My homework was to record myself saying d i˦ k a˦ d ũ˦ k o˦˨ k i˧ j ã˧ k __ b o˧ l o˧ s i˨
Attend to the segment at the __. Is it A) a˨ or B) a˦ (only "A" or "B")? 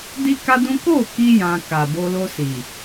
A